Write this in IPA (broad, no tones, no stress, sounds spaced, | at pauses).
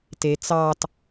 t e t͡s ɑ t